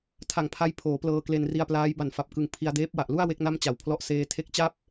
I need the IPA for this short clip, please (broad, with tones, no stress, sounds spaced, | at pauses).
tʰ a˧ ŋ pʰ a˦˥ j pʰ oː˩˦ p l ɤː˧ k l e˧ n r i˧ a̯ p l aː˦˥ j b a˨˩ n f a˨˩ p̚ k ɯ˨˩ ŋ pʰ i˧ a̯ d eː˦˥ p̚ w a˨˩ ʔ l u˥˩ a̯ w e˦˥ k̚ n a˥˩ m t͡ɕ a˨˩ w pʰ l ɔ˦˥ ʔ s eː˧ tʰ e˦˥ k̚ t͡ɕ a˥˩ p̚